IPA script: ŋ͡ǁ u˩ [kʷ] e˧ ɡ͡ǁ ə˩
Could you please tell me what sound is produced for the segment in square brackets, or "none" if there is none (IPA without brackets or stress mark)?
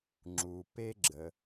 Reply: p